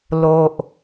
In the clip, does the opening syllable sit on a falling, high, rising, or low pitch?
low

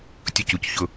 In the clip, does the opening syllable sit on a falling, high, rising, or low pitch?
low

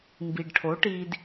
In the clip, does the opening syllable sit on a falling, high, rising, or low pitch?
low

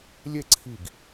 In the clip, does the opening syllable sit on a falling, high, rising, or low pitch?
falling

